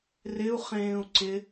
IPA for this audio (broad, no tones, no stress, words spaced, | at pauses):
rɪu̯χẽːu̯ ǀɪ